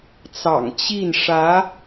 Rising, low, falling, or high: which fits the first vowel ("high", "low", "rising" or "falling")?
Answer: low